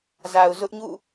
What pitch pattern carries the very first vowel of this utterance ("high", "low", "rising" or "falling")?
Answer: low